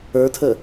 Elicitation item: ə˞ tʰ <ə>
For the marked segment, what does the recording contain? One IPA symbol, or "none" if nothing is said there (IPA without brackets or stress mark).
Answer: ə